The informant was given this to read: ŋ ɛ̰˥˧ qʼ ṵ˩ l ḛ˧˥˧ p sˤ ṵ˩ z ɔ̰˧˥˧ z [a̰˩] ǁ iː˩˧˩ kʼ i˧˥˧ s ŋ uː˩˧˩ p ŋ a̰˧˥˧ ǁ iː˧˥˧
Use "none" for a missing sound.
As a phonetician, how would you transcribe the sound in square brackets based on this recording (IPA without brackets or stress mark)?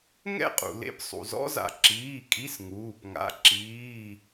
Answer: a̰˩